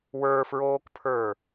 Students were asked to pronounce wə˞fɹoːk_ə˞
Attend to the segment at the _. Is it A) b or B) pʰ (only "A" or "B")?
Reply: B